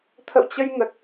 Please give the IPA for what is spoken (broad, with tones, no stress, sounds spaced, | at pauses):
t̪ʰ ə̰˧˨ w t͡ɕ ə˧ j ŋ ə˨˩ t̚